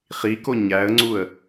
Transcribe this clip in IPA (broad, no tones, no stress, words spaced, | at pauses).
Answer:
χiko ɲæə̯ŋ͡ǀuə̯